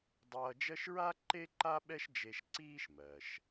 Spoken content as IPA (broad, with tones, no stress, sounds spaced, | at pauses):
dˤ ʌː˧ d͡ʒ ɜ˥ ʃ ɹ a˥ ǃ e˥ ǃ a˥ ɓ ɛ˥ ʃ d͡ʒ e˧ ʃ ǀ iː˥ ʃ m ɜ˩ ʃ